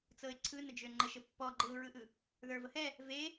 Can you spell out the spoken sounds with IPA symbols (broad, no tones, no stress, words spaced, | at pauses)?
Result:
t͡sɤɪ̯ǀʰɯnəd͡ʒø ŋ͡ǃəʃə pːɔ ɡ͡ǃɯʊ̯ɹɯʔɯ | ðə˞vəhɛ | ve